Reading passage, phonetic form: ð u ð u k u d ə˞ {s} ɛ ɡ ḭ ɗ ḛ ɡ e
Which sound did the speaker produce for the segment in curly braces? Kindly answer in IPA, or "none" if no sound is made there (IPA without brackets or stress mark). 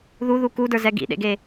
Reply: z